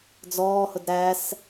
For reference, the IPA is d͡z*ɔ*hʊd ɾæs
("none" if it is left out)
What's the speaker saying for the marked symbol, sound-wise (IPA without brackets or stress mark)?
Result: ɔː